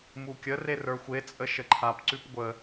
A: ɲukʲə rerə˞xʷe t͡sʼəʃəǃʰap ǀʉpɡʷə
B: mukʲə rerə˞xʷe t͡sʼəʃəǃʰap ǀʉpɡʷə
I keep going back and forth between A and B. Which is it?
B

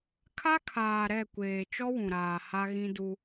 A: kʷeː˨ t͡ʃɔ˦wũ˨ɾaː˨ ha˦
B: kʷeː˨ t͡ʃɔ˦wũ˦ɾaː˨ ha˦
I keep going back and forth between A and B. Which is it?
A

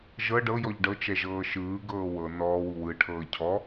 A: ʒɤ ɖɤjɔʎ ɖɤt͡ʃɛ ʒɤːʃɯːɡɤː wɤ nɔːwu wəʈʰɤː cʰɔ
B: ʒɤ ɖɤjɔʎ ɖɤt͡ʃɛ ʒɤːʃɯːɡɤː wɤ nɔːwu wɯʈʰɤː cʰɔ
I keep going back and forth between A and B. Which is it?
B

